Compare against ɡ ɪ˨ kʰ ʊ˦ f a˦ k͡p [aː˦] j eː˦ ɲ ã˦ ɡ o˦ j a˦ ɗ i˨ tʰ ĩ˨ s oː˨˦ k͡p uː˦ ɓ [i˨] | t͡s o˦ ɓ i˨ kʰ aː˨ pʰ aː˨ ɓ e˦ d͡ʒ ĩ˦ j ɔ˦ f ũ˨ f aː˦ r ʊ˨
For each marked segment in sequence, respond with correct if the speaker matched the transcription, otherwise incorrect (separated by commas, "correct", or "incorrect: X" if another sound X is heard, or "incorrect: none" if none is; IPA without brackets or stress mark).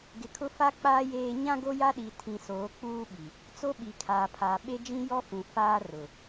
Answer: correct, correct